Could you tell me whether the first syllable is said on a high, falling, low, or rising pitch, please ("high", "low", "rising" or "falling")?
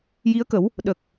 rising